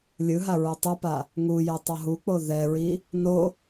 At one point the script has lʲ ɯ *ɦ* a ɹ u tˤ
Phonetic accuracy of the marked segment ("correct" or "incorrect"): correct